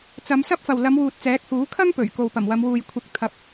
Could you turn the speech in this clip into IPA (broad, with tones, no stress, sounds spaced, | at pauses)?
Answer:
t͡s ɐ˨˧ m s ɐ˥ p̚ f ɐ˨ w l ɐ˨˧ m w uː˨ t̚ t͡s ɛː˨˥ k̚ h uː˨˥ kʰ ɐ˥ ŋ p ɵ˨˩ ɥ k o˨ w p ɐ˨˩ m w ɐ˨˧ m w uː˨ j kʷʰ ɪ˧ k̚ t̪ʰ ɐ˧ p̚